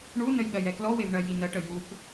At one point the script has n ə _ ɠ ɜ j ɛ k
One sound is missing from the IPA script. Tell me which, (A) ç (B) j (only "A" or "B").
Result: B